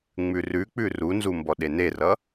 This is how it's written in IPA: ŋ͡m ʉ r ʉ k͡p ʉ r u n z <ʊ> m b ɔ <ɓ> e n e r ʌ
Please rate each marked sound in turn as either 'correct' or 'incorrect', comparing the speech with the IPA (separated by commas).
incorrect, incorrect